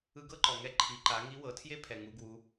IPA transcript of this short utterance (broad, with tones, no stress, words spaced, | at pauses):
ɯ˧ɡɤ˥ǃɔ˩ŋɛ˧ ǃʰi˩˧ǃa˩˧ ŋi˧˥wɤ˩˧tʰje˥ pʰɛ˩ŋu˩˧ɡwu˩˧